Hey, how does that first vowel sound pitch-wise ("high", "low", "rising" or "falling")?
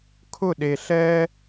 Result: falling